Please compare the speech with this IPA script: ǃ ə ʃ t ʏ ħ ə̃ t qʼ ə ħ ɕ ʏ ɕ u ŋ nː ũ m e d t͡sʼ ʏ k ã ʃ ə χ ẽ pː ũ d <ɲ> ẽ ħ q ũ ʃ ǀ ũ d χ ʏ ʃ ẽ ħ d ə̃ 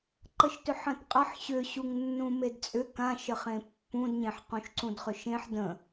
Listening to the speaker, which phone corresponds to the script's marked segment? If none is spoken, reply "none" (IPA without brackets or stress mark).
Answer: ɲ